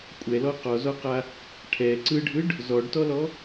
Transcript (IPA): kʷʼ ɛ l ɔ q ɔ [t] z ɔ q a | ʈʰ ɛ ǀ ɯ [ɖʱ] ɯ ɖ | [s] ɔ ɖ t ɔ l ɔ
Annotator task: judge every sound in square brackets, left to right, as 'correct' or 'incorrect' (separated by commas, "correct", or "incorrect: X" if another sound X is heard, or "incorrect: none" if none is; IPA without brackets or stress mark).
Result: incorrect: none, correct, incorrect: z